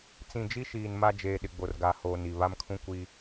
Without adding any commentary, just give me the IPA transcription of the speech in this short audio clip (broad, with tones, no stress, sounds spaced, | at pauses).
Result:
t͡s ĩ˨ d͡ʒ i˦ ʃ iː˨ n m a˦ d͡ʒ eː˨ ɗ ɪ˨ ɡ͡b o˨ r ɡ a˨ h oː˨ n i˨ β a˦ m kʰ ũ˦ kʷ i˦